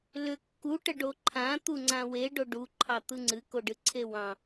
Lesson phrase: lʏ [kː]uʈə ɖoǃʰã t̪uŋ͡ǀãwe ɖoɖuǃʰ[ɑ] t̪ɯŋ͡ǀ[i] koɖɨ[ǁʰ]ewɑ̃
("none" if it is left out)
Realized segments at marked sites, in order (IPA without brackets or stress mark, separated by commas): kː, ɑ, ɨ, ǀʰ